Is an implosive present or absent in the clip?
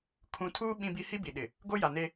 present